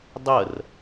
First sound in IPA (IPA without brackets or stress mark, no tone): dˤ